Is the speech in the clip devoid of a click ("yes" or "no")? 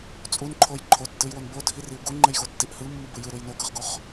no